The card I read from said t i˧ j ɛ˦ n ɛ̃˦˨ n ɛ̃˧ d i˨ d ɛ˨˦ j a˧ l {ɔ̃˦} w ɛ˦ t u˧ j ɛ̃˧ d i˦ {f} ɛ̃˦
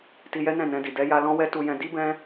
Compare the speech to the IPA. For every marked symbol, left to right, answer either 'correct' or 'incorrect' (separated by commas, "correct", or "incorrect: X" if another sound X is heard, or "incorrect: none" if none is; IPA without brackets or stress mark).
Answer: correct, incorrect: b